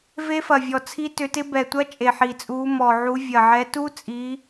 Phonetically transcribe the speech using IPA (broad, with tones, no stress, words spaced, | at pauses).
ve˦˥fɐ˨˩vʲɔ˨˩ t͡sʰi˦˥tʏ˨˦tɪ˦˥ bɛ˨˩tʷɐ˦˥ t͡ʃʼe˨˩ħi˨˩t͡sʼuː˨˦ mɔ˨˩ʕu˨˦ vʲɐ˨˩ʕɛ˨˦tu˦˥t͡sʼi˨˦